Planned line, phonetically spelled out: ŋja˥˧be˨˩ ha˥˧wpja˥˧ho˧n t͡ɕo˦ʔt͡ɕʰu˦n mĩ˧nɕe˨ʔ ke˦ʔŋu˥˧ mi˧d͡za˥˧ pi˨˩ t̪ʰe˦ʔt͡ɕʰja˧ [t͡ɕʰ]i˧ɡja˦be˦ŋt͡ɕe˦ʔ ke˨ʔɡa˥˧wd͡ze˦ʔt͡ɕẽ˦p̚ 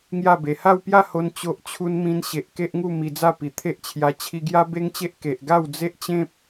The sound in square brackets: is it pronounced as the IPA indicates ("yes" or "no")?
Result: yes